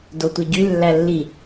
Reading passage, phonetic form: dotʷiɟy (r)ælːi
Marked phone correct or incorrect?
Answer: incorrect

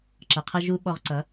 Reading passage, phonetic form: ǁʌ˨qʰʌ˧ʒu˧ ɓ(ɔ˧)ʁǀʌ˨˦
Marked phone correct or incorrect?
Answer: correct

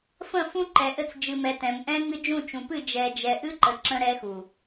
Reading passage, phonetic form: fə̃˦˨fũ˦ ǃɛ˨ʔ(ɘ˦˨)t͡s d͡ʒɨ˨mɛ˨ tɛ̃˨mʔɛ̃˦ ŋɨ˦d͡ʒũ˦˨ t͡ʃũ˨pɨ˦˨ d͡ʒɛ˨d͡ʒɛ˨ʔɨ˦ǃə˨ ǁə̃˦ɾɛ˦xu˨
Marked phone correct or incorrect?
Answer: correct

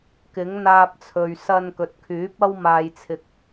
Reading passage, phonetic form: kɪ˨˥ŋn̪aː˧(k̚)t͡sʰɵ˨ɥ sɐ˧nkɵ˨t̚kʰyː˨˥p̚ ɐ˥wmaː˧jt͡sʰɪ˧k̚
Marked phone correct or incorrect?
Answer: incorrect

